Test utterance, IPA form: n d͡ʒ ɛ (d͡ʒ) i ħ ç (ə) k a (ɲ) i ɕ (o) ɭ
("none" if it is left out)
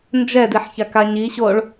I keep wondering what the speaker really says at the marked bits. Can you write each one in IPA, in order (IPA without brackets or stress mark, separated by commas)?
d, a, ɲ, o